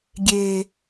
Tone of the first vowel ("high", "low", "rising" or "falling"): low